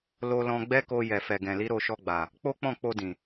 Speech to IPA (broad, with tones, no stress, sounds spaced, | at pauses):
l o˧ l ɔ̃˧ ɡ͡b ɛ˦ k o˧ j ɛ˨ f ɛ˨ ɡ ɛ̃˨ l i˨˦ ɾ o˦˨ ʃ ɔ˧ ɡ͡b a˨ | k͡p o˦ k͡p ɔ̃˦˨ k͡p o˧ d ĩ˨